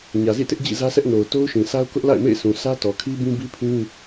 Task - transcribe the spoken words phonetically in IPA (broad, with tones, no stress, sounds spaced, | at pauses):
ɲ ä˨ z ḭ˦˨ t ɪ˦ ʔ d͡ʑ ḭ˦˨ z ä˦ sʰ ɛ˦ ʔ n o˨ ʊ̯ t o˦ ʊ̯ ʃ ĩ˨ s a˦ ʊ̯ k ʊ˦ ʔ l a̰˦˨ ɪ̯ m ḛ˦˨ ɪ̯ s ũ˨ sʰ ä˦ t ɔ˨ kʰ i˦ b ĩ˦ b i˦ pʰ ĩ˦